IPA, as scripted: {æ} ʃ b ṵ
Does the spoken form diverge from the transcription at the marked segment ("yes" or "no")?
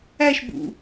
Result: no